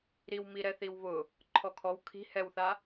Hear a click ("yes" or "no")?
yes